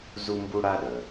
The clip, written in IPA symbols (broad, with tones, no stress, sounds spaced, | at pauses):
z u˥ m b u˥ ɽ a˥ ɗ œ˩